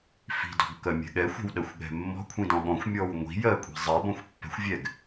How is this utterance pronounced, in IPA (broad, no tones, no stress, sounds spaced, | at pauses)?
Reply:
f i̤ d ɔ̤ ɡ k ɜ mʲ ɛ̤ ɠ ɛ xʷ ɛ̤ w ɗ ɜ xʷ ɠ ɛ̤ mː ɔ̤ kʷʰ ĩ d ɔ̃ ɠ ɔ̃ xʷ mʲ ɔ w ŋʷ i̤ j ɜ kʷʼ i̤ zˤ ɛ b ɔ̃ xʷ pː ɛ̤ xʷ vʲ ɛ ɡ